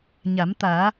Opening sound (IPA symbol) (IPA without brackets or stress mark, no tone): ɲ